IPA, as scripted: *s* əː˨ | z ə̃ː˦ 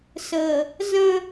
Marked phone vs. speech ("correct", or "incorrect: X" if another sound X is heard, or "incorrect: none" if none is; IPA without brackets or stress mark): correct